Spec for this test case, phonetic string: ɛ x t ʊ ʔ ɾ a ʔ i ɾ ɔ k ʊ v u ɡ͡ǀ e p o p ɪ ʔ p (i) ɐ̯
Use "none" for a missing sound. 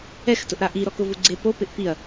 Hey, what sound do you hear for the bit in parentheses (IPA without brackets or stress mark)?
i